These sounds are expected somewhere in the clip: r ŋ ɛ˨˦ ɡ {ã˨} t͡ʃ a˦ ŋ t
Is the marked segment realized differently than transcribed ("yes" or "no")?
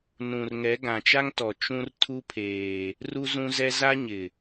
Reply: no